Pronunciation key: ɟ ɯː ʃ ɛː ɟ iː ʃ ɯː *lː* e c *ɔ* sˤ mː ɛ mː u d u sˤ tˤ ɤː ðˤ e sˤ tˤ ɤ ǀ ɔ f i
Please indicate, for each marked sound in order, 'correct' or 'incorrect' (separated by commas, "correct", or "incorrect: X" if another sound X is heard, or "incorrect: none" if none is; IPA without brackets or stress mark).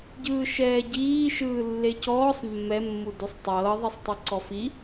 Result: correct, incorrect: ɔː